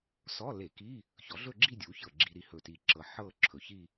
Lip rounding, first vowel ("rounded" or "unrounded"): rounded